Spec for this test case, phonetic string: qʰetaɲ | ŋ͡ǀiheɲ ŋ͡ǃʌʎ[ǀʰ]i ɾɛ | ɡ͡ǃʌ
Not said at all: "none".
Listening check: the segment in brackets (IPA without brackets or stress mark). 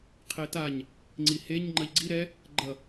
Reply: ɡ͡ǀ